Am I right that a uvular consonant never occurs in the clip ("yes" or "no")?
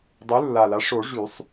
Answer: yes